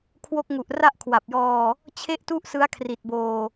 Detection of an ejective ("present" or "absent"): absent